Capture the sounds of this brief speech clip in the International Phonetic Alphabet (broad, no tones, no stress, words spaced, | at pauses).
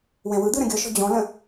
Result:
wɛ̃wɯd̪ɯ ɾə̃ɡʲɔʃɔ̤ d͡ʑɔ̃lə̃